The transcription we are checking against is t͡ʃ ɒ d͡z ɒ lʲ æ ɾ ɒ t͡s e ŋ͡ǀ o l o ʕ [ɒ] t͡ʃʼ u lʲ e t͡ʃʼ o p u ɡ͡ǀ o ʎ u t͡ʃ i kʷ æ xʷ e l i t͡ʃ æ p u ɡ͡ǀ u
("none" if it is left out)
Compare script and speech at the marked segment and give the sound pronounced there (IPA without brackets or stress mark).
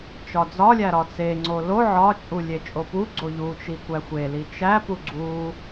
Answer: ɒ